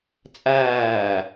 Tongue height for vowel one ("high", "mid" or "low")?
low